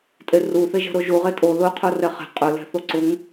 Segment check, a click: present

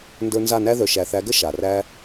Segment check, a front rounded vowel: present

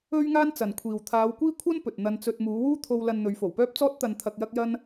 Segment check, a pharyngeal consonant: absent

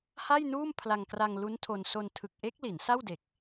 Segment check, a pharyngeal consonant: absent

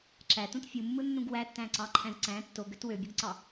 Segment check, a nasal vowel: present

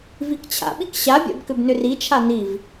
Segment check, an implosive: present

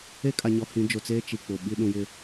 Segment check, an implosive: present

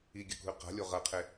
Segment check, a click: absent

